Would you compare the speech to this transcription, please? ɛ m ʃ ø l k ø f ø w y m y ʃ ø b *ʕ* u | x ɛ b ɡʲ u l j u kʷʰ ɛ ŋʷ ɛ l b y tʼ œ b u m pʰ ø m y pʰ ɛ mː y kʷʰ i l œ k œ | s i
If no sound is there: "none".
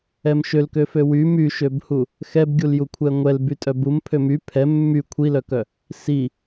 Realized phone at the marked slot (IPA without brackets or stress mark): h